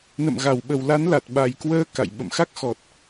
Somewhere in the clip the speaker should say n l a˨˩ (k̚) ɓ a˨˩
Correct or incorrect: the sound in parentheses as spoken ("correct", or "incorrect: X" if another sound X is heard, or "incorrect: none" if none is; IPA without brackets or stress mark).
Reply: incorrect: t̚